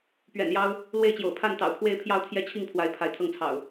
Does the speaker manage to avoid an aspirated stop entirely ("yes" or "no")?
no